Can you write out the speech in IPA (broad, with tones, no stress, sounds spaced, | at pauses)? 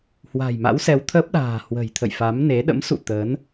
h w a̤˨˩ j m a̰˧˥ w s ɛ˨˦ w t̪ʰ əː˦˥ p̚ ɗ a̤ː˨˩ h w ə̤˨˩ j t̪ʰ ə̰˧˨ j f a˨˦ m n e˨˦ ɗ ə̰˧˥ m s ṵ˧˨ t̪ əː˨˦ n